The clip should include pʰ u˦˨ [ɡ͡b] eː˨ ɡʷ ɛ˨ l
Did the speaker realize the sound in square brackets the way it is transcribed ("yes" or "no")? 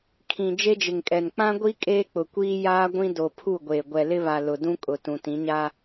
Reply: no